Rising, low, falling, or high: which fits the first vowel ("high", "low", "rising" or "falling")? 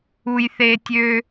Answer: low